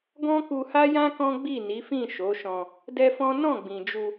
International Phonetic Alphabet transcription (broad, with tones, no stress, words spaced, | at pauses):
ɡɔ̃˦ku˧ha˦jã˦ kɔ̃˦ɡ͡bi˦˨ni˨˦fĩ˦˨ ʃo˨˦ʃɔ̃˧ | dɛ˦fɔ̃˦ nɔ̃˦˨ɡ͡bĩ˨d͡ʒu˧